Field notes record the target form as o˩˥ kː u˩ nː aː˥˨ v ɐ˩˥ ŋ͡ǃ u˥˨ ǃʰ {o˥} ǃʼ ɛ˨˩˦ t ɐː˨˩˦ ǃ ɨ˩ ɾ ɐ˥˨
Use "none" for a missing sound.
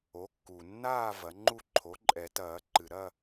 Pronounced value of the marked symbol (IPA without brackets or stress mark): o˩˥